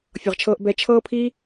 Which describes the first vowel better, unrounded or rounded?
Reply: unrounded